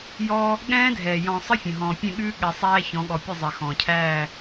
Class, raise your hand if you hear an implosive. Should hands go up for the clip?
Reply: yes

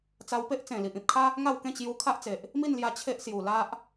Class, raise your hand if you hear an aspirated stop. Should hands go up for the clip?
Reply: yes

